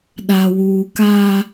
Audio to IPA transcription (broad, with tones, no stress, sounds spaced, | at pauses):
ɗ a˨ w uː˨ k a˦